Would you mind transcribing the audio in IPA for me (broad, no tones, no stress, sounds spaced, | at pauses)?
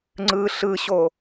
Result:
ŋ͡ǀ ɯ ɬ ɯ ɕ o